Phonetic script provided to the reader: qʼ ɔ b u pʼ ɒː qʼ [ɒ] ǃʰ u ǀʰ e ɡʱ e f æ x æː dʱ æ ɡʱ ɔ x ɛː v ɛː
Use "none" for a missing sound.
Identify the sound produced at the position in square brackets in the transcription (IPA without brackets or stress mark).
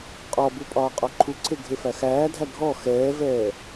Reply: ɒ